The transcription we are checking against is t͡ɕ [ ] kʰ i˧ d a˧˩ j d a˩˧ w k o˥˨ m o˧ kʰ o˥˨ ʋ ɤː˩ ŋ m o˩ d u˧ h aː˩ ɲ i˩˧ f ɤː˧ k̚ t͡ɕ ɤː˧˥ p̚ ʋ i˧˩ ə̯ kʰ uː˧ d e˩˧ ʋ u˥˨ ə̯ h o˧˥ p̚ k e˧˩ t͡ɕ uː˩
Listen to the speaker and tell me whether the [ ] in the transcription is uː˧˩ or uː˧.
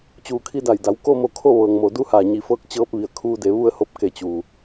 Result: uː˧˩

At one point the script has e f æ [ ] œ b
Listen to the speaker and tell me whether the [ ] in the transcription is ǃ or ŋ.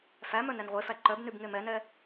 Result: ǃ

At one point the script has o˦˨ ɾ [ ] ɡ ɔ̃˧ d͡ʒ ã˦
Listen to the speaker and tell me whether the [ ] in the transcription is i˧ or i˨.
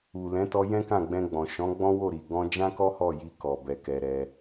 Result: i˨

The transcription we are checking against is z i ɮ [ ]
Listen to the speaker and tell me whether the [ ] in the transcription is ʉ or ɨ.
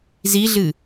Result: ɨ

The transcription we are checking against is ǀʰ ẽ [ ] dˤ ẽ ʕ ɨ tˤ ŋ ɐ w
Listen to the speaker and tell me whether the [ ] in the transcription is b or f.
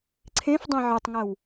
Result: f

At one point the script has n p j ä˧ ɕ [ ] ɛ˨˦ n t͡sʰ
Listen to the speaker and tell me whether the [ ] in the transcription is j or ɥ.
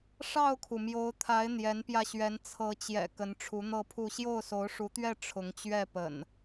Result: ɥ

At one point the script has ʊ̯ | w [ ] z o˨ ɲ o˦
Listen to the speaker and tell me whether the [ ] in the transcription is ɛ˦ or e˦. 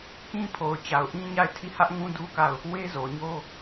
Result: e˦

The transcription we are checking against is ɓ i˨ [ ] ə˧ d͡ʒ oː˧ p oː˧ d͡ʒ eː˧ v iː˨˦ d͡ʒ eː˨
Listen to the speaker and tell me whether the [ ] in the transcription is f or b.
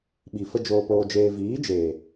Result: f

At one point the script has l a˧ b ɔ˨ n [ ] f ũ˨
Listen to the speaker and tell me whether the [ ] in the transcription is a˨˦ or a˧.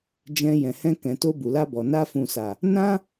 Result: a˧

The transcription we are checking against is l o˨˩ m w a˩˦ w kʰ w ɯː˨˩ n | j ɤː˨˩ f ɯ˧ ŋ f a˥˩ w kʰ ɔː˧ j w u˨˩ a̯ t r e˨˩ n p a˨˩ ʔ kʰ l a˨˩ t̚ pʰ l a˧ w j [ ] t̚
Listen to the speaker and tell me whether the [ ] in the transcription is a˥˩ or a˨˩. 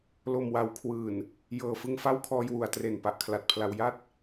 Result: a˥˩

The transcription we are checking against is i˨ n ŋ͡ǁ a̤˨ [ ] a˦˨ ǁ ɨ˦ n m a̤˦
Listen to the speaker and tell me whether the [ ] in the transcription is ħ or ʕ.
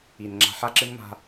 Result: ħ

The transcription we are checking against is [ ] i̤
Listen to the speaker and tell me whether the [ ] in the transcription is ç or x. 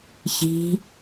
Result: ç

